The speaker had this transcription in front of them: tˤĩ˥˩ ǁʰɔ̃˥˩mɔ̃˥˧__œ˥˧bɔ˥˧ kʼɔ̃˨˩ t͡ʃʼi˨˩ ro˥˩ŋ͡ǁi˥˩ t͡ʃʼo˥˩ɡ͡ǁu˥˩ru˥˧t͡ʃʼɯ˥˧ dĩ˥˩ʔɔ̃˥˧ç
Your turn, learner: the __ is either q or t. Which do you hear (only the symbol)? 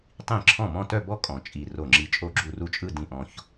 t